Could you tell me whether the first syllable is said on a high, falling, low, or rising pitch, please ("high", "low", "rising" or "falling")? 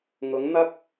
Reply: rising